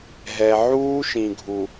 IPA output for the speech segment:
ɦɛ˨ ʕuː˦ʃĩ˨ɡʱu˨

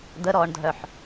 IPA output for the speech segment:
d̪əɾɔːɳdʱœħ

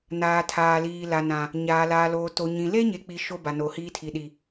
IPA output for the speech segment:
naː˨ tʰaː˨liː˨ la˨nã˨ | ɲaː˨laː˨loː˨ to˨ɲĩ˨ le˦ɲe˨k͡pi˨ ʃo˦ ba˨no˨ hiː˦tʰi˨ɗi˨

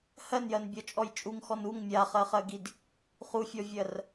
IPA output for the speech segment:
hɜnjɜnbʲɔt͡ʃʼɔj t͡ʃʼuŋxɔn uŋ mʲaχɜχɜɡid | χufʲɔvʲɜr

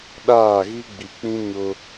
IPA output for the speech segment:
ɗaː˦˨ɣi˦ɡ͡bi˨k͡pĩ˦ ɲʊ˦

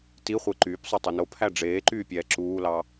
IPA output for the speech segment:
ti χʷeǃyːpsˤo tˤunopʰæ ɖ͡ʐeːǃyː pʲɛːǁuːlɑ

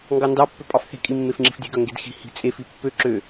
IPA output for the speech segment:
ŋɡɑndɑpːø pʼɑfθe̤kʼi mːefŋ͡ǁi̤fdʲe̤ɡœ ŋɡedxi̤hi̤ t͡sʼefi pːø ǁø

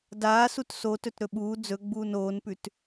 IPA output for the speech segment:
daː sutso tɵtɾɵɓuː d͡zɵɡ͡buːn oːnpʉt

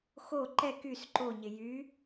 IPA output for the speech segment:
xo ǃɛ kys ǃoɲɪ jy

